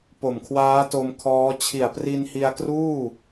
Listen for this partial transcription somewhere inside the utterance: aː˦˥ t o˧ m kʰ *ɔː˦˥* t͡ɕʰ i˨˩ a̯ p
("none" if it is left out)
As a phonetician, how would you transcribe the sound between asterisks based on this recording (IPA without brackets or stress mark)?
ɔː˦˥